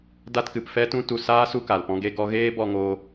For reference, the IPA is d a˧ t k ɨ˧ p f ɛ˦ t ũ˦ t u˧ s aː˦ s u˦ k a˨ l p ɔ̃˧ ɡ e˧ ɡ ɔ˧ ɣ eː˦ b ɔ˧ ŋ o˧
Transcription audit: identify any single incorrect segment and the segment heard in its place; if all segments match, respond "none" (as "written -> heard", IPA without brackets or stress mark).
ɨ˧ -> ɨ˨